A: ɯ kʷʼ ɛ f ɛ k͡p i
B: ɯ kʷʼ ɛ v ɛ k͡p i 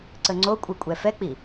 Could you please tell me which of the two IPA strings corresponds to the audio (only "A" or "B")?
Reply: A